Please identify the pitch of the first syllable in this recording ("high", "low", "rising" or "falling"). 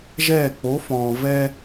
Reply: falling